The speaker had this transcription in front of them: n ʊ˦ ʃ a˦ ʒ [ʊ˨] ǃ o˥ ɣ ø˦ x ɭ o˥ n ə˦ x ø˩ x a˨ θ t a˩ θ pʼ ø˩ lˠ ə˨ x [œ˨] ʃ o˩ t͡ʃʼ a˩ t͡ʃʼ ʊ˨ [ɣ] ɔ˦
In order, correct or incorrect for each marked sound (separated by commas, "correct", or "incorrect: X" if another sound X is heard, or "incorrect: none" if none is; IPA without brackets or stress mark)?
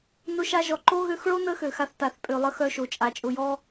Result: incorrect: ɔ˨, correct, incorrect: j